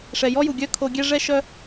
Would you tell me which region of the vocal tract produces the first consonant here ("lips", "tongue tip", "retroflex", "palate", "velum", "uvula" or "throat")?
retroflex